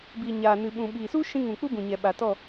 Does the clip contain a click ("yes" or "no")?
no